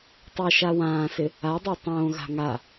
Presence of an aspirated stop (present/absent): absent